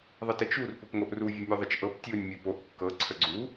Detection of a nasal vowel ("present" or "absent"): absent